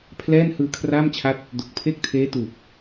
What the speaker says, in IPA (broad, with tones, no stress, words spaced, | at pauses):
pʰlɛː˥˩n hɯː˧kʰraː˥˩mt͡ɕʰa˦˥t̚ | do˨˩k̚pʰe˥˩k̚tʰeː˦˥ tuː˨˩p̚